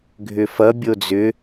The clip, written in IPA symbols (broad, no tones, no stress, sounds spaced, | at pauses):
ɡʱ ʏ f ʌ bʲ o d͡z ʏ